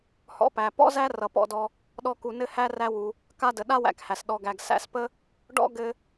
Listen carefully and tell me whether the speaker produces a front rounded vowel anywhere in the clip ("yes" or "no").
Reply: no